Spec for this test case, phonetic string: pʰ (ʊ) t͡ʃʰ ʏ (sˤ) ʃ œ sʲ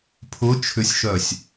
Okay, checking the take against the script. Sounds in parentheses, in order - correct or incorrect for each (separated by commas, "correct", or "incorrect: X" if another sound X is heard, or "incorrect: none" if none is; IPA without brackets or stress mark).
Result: correct, incorrect: sʲ